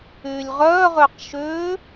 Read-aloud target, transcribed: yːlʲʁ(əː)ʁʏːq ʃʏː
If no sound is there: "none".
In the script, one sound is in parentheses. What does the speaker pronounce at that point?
œː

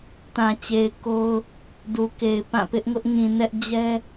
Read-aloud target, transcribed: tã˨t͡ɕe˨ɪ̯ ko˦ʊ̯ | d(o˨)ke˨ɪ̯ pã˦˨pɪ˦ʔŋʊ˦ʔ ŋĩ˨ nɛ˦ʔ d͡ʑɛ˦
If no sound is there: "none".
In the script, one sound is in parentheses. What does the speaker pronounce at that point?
u˨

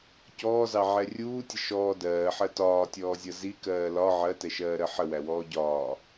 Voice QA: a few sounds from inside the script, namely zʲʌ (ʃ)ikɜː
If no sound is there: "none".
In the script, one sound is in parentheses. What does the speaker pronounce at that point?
z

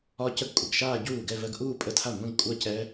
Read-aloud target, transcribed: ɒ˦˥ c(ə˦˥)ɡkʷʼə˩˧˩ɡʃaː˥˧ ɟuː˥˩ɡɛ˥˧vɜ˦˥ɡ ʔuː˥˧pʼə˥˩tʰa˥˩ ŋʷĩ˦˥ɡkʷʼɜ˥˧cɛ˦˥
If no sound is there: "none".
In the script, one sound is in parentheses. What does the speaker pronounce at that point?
ə˥˩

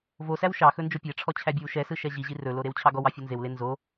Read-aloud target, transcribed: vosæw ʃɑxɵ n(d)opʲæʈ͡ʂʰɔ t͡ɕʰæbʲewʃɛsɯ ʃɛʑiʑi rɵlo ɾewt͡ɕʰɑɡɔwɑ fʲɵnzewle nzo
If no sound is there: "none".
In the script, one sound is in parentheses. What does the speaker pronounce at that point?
d͡ʒ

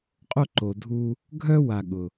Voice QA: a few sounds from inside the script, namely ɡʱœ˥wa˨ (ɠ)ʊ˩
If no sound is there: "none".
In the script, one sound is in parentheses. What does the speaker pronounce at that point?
ɠ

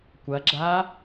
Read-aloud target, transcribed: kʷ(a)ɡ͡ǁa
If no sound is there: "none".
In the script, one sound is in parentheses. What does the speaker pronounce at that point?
ɐ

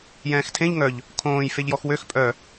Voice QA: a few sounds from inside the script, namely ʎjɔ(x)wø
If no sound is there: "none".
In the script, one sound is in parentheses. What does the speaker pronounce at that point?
x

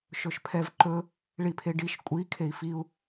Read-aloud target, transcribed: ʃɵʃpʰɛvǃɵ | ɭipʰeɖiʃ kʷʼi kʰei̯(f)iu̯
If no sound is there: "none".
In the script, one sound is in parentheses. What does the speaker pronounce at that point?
f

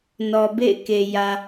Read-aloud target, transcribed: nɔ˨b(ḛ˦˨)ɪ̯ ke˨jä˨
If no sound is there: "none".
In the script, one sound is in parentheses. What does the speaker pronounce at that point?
ḛ˦˨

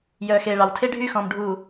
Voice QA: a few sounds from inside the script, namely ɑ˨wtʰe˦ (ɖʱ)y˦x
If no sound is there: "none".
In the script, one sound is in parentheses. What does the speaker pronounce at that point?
ɖʱ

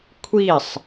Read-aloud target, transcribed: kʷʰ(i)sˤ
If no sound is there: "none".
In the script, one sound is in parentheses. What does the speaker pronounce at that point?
i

